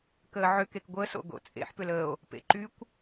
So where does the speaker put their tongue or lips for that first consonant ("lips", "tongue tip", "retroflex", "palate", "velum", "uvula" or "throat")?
velum